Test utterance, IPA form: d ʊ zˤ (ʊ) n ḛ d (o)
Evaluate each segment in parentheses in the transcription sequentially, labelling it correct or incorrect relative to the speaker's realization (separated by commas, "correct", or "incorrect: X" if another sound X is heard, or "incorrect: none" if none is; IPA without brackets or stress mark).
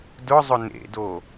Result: correct, correct